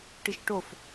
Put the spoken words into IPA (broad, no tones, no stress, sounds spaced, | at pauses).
ʈ i ʃ ʈ o f